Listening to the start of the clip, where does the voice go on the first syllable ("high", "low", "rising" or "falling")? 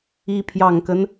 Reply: rising